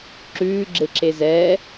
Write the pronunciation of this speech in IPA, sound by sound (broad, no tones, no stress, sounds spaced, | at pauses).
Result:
ǁ ʉː ɡ͡ǁ e ǁ e z ɛː